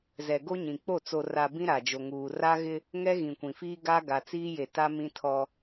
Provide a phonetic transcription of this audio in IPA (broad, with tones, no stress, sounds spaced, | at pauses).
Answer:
z ɛ˨ ɡ o˦ ɲ ĩ˨ k͡p o˦˨ t͡s o˨ r a˨ b ĩ˦ ɾ a˨ d͡ʒ o˨ ŋ uː˨ r a˦ ɣ ɪ˦ | ŋ ɛ˦ ɣ ĩ˨ kʷ ĩ˨ f iː˦ ɡ a˦ ɡ a˨ t͡s iː˦ j e˨ t a˦ m ĩ˦ tʰ ɔ˦